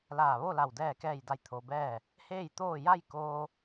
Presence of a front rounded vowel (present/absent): absent